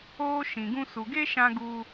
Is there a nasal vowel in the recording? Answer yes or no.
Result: yes